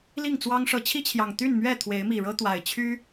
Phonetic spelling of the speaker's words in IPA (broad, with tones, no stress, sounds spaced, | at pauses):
l i˥˨ ŋ t͡s w ɑ˦ ŋ ʂ ɤ˨˦ t͡ɕʰ i˦ t͡ɕʰ j ɑ˨˩ ŋ t̪ y˥˨ n m ɥ ɛ˥˨ t̪ʰ w e˨˦ ɪ̯ m i˨˩ ɻ ɤ˦ t̪ w a˨˩ ɪ̯ t͡ɕʰ y˦